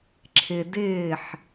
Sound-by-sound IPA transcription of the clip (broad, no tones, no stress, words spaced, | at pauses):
ǁʰɪ dɪːħ